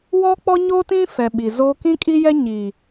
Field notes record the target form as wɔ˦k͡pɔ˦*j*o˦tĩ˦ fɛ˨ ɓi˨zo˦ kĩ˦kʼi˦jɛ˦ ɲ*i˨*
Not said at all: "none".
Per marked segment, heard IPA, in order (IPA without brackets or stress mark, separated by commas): ɲ, i˨